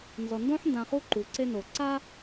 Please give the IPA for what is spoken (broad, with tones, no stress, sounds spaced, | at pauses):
n z ɔ˩ n d õ˥ ħ n d ã˨ χ u˦ ǃ u˩ ǀ e˦ n o˩ ǀ a˦